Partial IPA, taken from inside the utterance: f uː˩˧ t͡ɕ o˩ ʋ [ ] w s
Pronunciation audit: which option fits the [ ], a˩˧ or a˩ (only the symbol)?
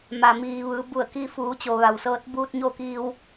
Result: a˩